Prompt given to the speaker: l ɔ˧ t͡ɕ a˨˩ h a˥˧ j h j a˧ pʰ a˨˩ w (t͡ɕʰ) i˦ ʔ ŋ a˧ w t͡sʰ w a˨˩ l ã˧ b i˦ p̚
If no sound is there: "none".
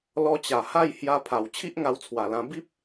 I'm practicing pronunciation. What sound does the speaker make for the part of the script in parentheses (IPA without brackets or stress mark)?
t͡ɕʰ